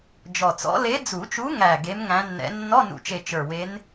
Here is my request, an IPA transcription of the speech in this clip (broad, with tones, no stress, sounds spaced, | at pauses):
d͡ʒ ɔ˨˩ t͡s ɔ̰˧˥ l e˧˥ d͡z u˨˩˦ t͡ʃ u˧˥ ŋ æ˨˩ ɡ e˧˥ m ŋ æ̃˧˥ nː ɛ̰˧˥ nː ɔ˧˥˧ n ṵ˨˩ t͡ʃ e˨˩ t͡ʃ ə˞˨˩ w e˧˥ n